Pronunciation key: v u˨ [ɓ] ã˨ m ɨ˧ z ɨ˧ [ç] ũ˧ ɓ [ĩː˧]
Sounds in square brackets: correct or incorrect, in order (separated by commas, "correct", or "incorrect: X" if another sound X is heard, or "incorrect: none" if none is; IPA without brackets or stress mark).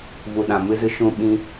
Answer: incorrect: ɗ, incorrect: ʃ, incorrect: ĩ˧